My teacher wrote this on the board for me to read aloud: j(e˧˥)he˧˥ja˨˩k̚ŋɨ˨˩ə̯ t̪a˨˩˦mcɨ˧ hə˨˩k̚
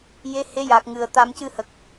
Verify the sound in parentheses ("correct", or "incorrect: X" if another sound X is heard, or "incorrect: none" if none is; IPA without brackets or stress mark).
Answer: correct